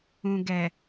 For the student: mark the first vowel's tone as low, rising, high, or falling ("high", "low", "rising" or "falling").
low